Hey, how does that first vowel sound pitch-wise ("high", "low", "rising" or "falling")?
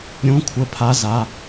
rising